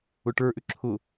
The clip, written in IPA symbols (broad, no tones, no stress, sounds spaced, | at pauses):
ʊ ʈ ə˞ ʔ ʏ ǁʰ ʊ